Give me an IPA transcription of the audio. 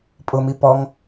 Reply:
pʼ ʊ m i p ɔ ŋ

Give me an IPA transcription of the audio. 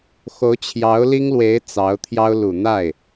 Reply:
x o˧˥ ʊ̯ t͡ɕʰ j ɑ˧˥ ʊ̯ l i˥ ŋ l w e˧˥ ɪ̯ t͡s ɑ˧˥ ʊ̯ t̪ʰ j ɑ˥ ʊ̯ l u˨˩ n̪ a˥˩ ɪ̯

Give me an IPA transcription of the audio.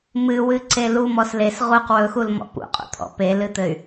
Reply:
m ɨ w ɨ ǀ e l u m ɔ s l e s ʁ u q w ɵ x u l m ɔ̰ p ṵ qʼ ṵ t̪ʰ ɔ̰ p e l ɨ t̪ ɘ y̯

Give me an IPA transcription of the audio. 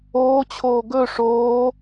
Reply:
oː t͡ɕʰ oː ɡ ɵ ʂ oː

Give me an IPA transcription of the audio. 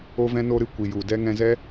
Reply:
o˦ v ɛ̃˦ n o˦ ɾ ɨ˨ kʷ i˨ j u˨ d ɛ˦ ŋ ɛ̃˧ z ɛ˦

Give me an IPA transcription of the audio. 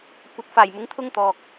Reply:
kʷ ɐ˨ t̚ f aː˨˩ j m ʊ˨˥ ŋ t̪ʰ ʊ˥ ŋ t̪ ɔː˨ k̚

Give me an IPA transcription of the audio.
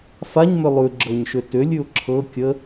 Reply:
f a ɲ m ʏ lˠ ʉ ɡ͡ǁ ɤ ɲ ʃ ʏ t ʏ lʲ ʉ ʊ̯ ǁʰ ɤ kʲ ə

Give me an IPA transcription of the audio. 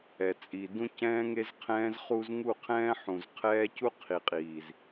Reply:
ɛ˨ t͡sʼ i˨ d ũ˦ c ɛ̃ː˦ ŋ e˦ z qʰ ɛ̃ː˦ z χ u˦ z ŋ u˦˨ qʰ ɛ̃ː˦ ħ ũ˨ z qʰ ɛː˦ c u˦ qʰ i˨ qʼ iː˨ z

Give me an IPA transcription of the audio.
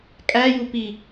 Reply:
kʼ æ j u p i

